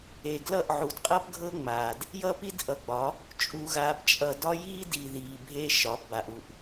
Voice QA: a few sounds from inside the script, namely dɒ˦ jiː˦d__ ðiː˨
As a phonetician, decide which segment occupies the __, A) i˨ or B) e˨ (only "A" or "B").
A